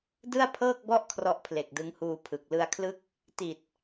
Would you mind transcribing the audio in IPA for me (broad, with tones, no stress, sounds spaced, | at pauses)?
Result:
d ɯ˥˩ a̯ pʰ ɤː˥˩ k̚ b ɔ˥˩ ʔ kʰ r ɔ˦˥ ʔ pʰ l e˨˩ k̚ d ɯ˦˥ ŋ h uː˧ pʰ ɯ˨˩ k̚ l ɯ˧ a̯ kʰ l ɯ˥˩ k̚ | t i˨˩ t̚